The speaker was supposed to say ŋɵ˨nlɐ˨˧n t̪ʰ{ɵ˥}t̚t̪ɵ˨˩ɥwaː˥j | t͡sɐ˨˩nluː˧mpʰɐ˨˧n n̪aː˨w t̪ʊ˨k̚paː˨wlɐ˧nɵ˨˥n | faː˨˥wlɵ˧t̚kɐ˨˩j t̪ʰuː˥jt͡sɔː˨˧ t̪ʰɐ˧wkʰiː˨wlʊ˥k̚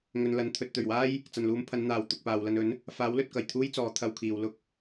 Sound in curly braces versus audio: incorrect: ɵ˨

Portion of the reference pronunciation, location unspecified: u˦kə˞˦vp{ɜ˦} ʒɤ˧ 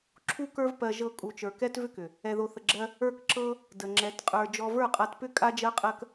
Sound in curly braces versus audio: incorrect: ɜ˧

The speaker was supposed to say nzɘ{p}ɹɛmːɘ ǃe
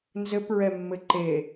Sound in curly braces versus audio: correct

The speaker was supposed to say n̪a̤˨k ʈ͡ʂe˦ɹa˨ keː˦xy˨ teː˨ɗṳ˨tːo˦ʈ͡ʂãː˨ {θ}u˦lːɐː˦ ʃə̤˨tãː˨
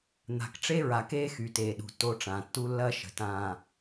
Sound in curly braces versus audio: incorrect: tː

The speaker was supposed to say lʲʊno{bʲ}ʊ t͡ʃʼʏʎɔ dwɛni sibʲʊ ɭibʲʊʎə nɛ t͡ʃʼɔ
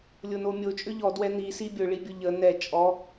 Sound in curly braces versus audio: incorrect: mʲ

